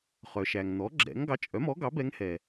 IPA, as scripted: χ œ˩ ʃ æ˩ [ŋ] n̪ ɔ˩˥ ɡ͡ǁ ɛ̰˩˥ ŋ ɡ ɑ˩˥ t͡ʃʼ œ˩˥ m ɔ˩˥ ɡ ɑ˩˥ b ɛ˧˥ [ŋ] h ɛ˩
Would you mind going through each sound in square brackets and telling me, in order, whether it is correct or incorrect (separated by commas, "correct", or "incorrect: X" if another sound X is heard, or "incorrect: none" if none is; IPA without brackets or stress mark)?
correct, correct